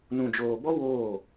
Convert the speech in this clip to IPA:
n ũ˨ d͡ʒ oː˨ b ɔ˦ w oː˦˨

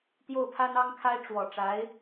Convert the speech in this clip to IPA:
t̪ j o˥˩ ʊ̯ pʰ a˥ n ɑ˥ ŋ kʰ a˥ ɪ̯ ʈ͡ʂ w ɔ˨˩ ʈ͡ʂ a˧˥ ɪ̯

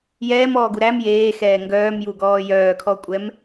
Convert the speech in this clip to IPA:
j ɛː m ɔː ɡ u ɾ æ m j eː x ɛː ŋ ɡ œː m j u ɡ ɔː j œː kʰ ɔ kʷʼ ɛ m

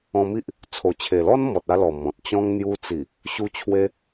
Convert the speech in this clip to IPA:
ɔ̃˧ m i˦ ʔ | t͡sʰ o˨˩ t͡ɕʰ e˨˩ l ɔ˦ n m ɔ˨ t̚ a˧ l ɔ˨˩ m ɔ̃˨ t̚ t͡ɕ ɔ̃˦ ŋ n̪ j u˧ t͡s i˨˩ | ɕ u˦ t͡ɕʰ w e˦

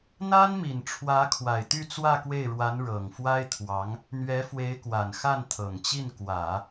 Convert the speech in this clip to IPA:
n̪ a˥ n m i˨˩ n ʈ͡ʂʰ w ä˧˥ kʰ w a˨˩ ɪ̯ t̪ y˥˧ t͡s w ä˥˧ k w e˥˩ ɪ̯ ɻ w a˧˥ n ɻ ɤ˨˩ ŋ f w a˥ ɪ̯ t̪ʰ w ɑ˧˥ ŋ | n̪ ɥ ɛ˧˥ f w e˧˥ ɪ̯ k w a˨˩ n x a˥˩ n t̪ʰ ɤ˨˩ ŋ t͡ɕ i˥˩ n k w ä˨˩˦

